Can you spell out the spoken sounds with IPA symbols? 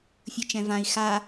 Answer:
fʲ ɯ t͡ʃ ɛ̃ v ã i̯ x a

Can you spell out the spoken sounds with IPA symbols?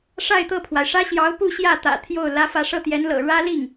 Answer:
ʂ a˥˧ ɪ̯ t̪ ɤ˥˩ pʰ w a˩ ɪ̯ ʂ ä˥ ɕ j ɑ˧˥ ʊ̯ p u˥˧ ɕ j ä˥˩ t̪ ä̰˨˩ t̪ʰ j o˥˩ ʊ̯ l ä˥ f ä˥˧ ʂ ɤ˥˩ t̪ j ɛ˧˥ n l ɤ̰˨˩ ɻ ä˥ l i˥˩ ŋ

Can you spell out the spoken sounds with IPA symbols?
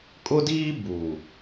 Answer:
kʼ ʊ˦ d iː˦ b uː˨

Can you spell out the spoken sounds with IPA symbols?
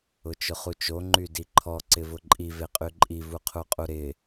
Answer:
ʊ t͡ʃ ʊ χ u t͡ʃ o ŋ͡ǃ y d i ǃʰ ɔ ǀ ɪ v ʊ ǃʼ i v e qʼ y ǃʼ i v u qʰ u qʼ u ɾ ɪ

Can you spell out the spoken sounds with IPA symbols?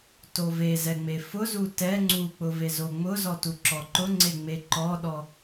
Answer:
t o v e z ɛ ŋ͡m e f ʊ z u t ɛ ŋ͡ǀ u k͡p ʊ v e z o ŋ͡m ʊ z ɔ t u ǁ ɔ ǃ ʊ ŋ͡ǀ e ŋ͡m e ǃ ɔ ɗ ɔ

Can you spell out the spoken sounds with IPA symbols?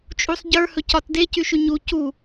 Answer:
t͡ʃʼ u sˤ ɟ ə˞ h ɵ c ɒ t d e c y ʃ y ɲ u c u

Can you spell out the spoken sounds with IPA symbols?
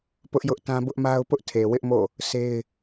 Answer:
p ʊ˦ ʔ j ʊ˦ ʔ t ã˦ b ʊ˦ ʔ m a˦ ʊ̯ p ʊ˦ ʔ tʰ e˨ w ɪ˦ ʔ m o̰˦˨ | sʰ e˦ ɪ̯

